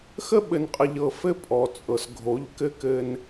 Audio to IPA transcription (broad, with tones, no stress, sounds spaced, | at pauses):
x ə˦ ɓ ɘ˨ n qʼ ə˨ ʎ ɤ˨ f ɘ˦ pʼ ɔ˨ t͡sʼ ɤ˨ s ɡʱ o˨˦ ʎ k ɘ˦ k ɘ˦ n